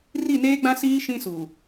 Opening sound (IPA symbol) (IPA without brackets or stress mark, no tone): r